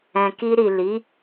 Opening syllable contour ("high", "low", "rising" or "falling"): low